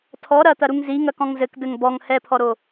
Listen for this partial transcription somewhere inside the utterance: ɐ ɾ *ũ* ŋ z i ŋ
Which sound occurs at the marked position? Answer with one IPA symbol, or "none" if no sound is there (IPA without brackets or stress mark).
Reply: u